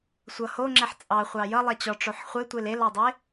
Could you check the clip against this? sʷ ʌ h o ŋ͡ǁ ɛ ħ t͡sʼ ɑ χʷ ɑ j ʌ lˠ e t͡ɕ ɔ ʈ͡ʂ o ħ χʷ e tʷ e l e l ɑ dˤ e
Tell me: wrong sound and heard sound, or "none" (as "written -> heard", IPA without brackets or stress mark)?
none